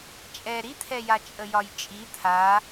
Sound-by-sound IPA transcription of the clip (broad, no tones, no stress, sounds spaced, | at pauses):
t͡ʃʼ ɛ ɾ i t̪ʰ ɛ j a t͡ʃʼ ə j ɒ j t͡ʃʼ i t̪ʰ a